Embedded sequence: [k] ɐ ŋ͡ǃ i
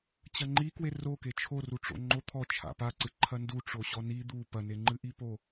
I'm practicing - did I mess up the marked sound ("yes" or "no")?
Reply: yes